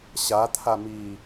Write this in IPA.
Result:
ɕat̪ʰamiː

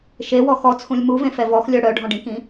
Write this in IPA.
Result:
ʃewɔ xɔt͡sʰũlʲ muvẽfɛ vɔxlʲœ ɽœɖʱɔ̃ɖĩkĩ

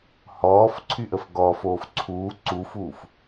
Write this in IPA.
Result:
hɔːf ǀʰyʔəfɡɔfoːf ǀʰuː ǀufuːf

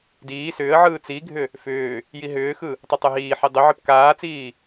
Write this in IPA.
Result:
diː sʏːə̯ʕɯː t͡siɡʱʏ | fʏː | jiɦʏːxɯ | tˤɨtˤɨɦiːħi dˤʏʕɨp kaːt͡siː

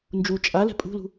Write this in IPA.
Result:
nd͡ʒu t͡ʃʼalɛ̤ pʼṳlṳ

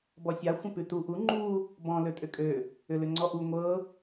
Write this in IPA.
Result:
bɔsʲa xʷə̃pʉtu ʔu ŋ͡ǃu | bɔ̃ løtʼʏkʼø | ʏlʏŋ͡ǀɔʔu ŋʷɤ

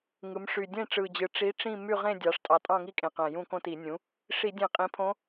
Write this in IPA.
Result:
ŋɯ˩˧mʂy˨˩ dʲẽ˥˧ʈ͡ʂɯ˨˩d͡ʑɯ˨˩ ʈ͡ʂi˧˥ʈ͡ʂĩ˥˧ my˥˧ʁẽ˥˧ dʲɑ˩˧ʂtʼɑ˨˩ tʼɑ̃˥˧ŋi˥˧kʼẽ˨˩qæ̃˨˩ jũ˥˧kõ˥˧ti˧˩˧ nʲũ˩˥ | ʂi˧˩˧dʲẽ˧˩˧qʼĩ˩˧ pʰõ˧˥

